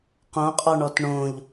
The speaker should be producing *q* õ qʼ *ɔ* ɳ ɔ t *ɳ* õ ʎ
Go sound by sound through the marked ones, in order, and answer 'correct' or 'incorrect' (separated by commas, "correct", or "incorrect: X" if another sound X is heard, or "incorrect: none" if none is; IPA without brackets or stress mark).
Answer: correct, correct, correct